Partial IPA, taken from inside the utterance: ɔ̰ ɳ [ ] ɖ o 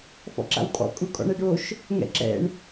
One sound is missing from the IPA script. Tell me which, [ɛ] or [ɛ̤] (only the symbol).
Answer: ɛ